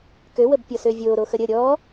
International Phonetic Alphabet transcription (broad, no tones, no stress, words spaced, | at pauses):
køwəbpʲɔ søvʲoːɾoxə ɾʲə ɾʲɔ